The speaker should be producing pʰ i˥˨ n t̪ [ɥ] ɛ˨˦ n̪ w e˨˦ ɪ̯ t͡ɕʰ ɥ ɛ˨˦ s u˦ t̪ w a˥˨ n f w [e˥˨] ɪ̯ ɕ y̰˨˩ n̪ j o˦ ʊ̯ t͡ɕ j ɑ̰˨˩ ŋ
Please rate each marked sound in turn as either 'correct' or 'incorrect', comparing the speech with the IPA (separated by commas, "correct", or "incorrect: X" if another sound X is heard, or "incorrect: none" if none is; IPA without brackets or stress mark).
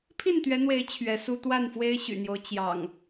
correct, incorrect: e˦